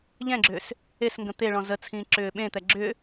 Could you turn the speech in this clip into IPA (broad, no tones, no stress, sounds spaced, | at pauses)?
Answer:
ʎ ɛ̃ ɡ͡ǁ ʏː s | e s ŋ ɡ ə̃ t̪ e ɭ ɔ̃ z ə t͡sʰ ĩː ǁ ʏː ɓ ẽ t̪ ɛ ɡ͡ǁ ʏː